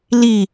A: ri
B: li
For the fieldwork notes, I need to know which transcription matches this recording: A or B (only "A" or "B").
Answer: B